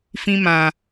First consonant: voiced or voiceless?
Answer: voiceless